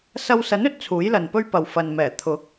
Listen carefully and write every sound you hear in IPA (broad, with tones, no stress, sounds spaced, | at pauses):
s ɐ˧ w s ɐ˨˥ n ɵ˨˥ t̚ t͡sʰ uː˨˥ j l ɐ˨ n p ɵ˥ ɥ p ɐ˨ w f ɐ˨ n m ɛː˨˩ t̪ʰ ʊ˨˥ k̚